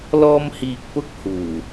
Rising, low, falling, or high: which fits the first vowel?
high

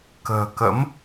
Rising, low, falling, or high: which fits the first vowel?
low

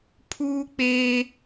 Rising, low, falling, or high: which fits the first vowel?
high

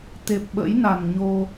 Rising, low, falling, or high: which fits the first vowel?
low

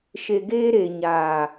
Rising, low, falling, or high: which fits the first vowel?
low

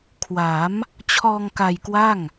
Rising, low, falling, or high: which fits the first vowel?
rising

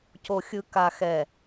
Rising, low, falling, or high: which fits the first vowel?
low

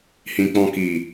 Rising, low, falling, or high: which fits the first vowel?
low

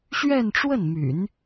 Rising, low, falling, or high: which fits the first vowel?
falling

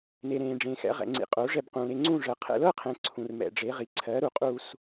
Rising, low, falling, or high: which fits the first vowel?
low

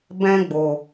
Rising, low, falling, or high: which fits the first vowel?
high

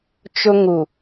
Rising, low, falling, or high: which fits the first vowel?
high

